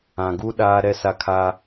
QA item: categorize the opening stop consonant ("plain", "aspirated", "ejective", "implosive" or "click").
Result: plain